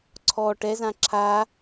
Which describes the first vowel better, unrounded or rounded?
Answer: rounded